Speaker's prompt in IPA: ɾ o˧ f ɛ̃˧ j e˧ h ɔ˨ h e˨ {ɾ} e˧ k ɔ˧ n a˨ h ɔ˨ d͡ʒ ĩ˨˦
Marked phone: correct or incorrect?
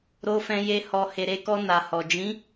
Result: correct